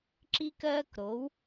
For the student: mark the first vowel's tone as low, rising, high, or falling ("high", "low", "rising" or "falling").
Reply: high